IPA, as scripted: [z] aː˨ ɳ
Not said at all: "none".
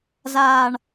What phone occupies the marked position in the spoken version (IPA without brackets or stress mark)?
z